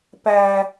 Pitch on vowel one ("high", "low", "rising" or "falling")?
low